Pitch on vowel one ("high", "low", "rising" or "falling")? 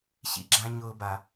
high